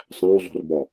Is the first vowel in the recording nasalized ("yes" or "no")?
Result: yes